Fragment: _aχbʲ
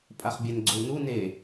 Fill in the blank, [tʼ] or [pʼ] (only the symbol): pʼ